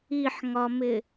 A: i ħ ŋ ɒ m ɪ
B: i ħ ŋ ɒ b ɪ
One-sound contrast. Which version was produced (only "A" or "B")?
A